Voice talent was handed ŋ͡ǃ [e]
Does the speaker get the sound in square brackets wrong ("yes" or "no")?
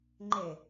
no